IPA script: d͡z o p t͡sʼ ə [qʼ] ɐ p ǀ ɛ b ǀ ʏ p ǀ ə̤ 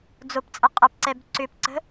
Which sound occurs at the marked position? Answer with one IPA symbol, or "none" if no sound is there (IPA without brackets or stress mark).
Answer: qʼ